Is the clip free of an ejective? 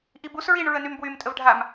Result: no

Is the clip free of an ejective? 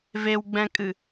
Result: no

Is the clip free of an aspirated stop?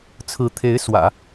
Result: no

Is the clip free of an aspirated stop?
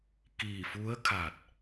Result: no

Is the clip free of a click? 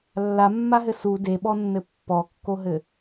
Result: yes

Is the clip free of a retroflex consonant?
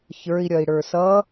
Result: no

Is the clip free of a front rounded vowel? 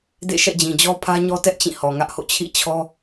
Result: yes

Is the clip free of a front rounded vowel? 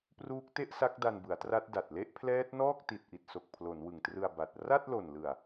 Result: yes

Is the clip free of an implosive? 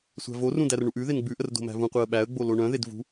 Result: no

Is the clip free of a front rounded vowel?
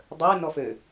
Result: no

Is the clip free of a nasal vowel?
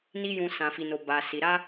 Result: no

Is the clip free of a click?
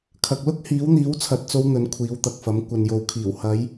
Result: yes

